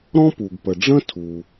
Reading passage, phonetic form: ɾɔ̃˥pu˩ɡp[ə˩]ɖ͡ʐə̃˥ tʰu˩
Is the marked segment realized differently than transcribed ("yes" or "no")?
no